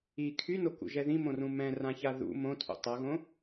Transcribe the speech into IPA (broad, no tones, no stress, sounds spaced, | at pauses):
i kʰ y n o k ṵ ʒ ɛ ð ĩ m õ r ũ m ɛ̃ r ã ç a ð ṵ m õ tʰ ṵ tˤ ʌ ɣ õ